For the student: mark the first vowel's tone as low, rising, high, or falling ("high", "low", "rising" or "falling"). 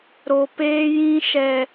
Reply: low